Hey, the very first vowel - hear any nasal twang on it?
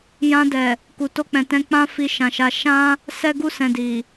yes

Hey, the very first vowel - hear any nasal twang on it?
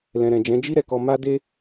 yes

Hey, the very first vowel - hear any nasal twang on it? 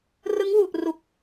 no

